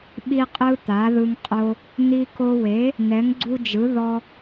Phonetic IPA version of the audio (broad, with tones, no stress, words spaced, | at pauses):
ɓi˦qʼɯ˦ t̪a˨˥ðɯ˦ŋqʼo˦ | n̪i˦ko˦ we˨˥ | n̪ɛ˨˥ŋɡ͡ǀu˦d͡ʒɯ˨˥ ðɔ˦